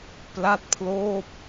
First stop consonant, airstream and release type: plain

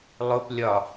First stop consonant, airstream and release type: plain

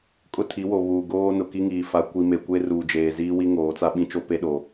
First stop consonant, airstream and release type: ejective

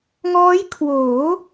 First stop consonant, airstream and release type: aspirated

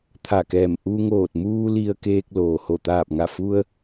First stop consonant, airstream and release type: aspirated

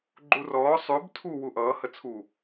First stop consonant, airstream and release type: click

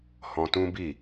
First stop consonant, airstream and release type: plain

